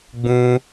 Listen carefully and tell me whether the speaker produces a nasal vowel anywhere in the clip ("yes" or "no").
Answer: yes